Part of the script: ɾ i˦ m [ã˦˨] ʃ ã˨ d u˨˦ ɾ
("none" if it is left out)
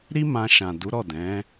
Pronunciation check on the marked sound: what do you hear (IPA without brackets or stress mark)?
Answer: ã˧